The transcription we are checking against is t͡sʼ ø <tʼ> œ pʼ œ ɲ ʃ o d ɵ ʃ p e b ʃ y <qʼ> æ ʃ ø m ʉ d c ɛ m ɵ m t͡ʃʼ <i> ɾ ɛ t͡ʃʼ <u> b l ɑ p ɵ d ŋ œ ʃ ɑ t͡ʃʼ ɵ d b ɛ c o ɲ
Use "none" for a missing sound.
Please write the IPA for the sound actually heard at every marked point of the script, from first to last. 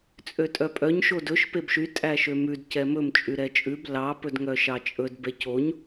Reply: tʼ, tʼ, y, ʉ

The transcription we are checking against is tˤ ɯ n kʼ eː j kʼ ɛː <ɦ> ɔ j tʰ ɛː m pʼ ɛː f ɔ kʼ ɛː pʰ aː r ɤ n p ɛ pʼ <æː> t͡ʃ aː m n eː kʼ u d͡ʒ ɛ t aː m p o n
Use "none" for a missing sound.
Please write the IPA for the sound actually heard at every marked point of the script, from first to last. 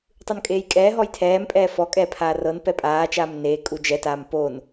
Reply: ɦ, aː

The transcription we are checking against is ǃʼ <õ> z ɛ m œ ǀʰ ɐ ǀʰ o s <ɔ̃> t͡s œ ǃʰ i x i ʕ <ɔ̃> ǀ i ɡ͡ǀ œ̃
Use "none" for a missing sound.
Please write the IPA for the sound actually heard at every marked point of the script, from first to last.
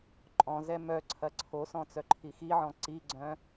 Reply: ɔ̃, ɔ̃, ɔ̃

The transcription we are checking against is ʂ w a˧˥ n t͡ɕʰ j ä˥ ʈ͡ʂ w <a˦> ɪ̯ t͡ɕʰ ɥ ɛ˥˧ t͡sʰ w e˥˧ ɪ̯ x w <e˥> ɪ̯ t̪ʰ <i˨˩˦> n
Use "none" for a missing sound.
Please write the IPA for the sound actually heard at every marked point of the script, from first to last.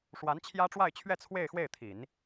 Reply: a˥˧, e˥˩, i˨˩˦

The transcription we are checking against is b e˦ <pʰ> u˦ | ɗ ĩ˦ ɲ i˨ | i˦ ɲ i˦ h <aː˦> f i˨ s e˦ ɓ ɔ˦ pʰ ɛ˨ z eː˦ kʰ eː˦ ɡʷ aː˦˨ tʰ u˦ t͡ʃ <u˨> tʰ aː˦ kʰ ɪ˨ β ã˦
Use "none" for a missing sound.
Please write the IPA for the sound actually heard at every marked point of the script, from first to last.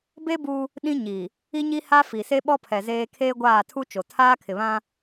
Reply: b, a˦, o˨

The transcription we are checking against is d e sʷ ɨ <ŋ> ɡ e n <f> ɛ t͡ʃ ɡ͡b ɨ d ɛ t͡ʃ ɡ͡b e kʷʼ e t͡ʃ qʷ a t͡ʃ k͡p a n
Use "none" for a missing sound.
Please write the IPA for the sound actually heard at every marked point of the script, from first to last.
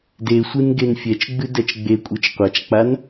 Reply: n, fʲ

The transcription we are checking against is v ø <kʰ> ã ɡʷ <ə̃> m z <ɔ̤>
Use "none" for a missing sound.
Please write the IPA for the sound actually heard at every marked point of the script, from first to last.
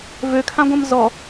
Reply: kʰ, ə̃, ɔ

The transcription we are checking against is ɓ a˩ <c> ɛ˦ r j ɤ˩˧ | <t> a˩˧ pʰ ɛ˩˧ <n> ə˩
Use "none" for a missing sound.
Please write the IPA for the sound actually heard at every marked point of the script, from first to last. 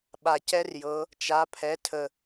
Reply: c, t͡ʃ, tʰ

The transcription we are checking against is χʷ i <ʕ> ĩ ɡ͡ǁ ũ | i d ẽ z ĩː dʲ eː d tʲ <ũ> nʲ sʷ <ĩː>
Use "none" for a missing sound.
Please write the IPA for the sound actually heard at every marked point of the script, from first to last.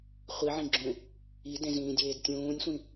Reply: ʕ, ũː, ĩ

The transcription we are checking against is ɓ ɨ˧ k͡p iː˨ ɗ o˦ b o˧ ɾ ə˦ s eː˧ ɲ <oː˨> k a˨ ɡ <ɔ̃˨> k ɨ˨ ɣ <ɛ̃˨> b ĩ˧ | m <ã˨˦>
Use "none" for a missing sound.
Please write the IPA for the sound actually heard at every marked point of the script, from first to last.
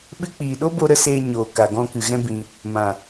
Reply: oː˨, ɔ̃˧, ɛ̃˦, ã˨

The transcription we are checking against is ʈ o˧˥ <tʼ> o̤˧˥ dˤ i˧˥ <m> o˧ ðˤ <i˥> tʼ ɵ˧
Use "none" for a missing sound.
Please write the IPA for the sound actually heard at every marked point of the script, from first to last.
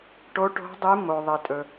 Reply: ʈ, m, i˧

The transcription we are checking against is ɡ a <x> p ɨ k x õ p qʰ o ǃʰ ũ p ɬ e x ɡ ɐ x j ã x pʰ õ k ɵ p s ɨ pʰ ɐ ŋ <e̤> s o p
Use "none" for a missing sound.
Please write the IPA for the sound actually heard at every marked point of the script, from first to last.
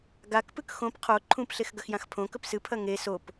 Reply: k, e

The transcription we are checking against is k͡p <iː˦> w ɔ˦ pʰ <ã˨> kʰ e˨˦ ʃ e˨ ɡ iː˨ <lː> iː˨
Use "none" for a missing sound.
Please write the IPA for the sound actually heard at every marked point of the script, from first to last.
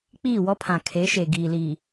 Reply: iː˦˨, ã˨, l

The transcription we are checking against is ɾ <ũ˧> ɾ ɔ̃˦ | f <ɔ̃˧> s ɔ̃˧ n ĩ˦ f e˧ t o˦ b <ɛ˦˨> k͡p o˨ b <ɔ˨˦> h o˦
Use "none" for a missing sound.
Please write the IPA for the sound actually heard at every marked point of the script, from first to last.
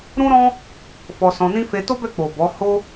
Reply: ũ˦, ɔ˧, ɛ˦˨, ɔ˨˦

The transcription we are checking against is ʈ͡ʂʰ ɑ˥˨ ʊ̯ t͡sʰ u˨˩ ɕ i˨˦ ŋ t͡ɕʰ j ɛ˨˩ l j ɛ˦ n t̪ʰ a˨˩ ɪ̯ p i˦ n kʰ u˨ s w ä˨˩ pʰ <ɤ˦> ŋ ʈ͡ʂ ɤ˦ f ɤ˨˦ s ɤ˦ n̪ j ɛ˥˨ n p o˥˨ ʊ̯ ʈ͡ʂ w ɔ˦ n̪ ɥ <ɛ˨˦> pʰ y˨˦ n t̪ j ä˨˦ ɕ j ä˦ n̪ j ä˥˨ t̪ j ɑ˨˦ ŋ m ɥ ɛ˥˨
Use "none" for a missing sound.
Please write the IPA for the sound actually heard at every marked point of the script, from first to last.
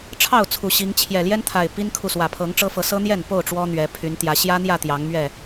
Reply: ɤ˨˦, ɛ˨˦

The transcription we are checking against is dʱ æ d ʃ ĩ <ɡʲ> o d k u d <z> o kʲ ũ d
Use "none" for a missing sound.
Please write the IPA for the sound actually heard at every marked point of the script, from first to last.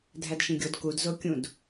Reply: ɡʲ, z

